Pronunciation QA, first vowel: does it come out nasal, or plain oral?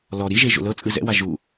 oral